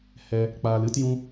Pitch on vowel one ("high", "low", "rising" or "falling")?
high